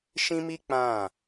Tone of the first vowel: high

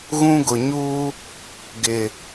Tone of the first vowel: high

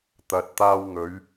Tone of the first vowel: low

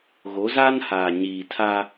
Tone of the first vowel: rising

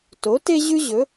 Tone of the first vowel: rising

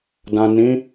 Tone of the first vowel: low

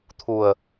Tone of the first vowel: low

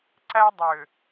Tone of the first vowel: high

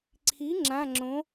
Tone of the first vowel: rising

